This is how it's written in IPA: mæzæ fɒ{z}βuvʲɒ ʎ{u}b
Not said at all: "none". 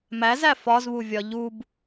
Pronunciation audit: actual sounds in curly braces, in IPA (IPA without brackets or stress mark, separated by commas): z, u